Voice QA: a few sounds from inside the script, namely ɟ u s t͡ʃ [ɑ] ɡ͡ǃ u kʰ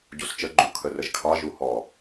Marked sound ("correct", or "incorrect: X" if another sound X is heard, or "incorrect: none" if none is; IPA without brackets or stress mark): incorrect: ə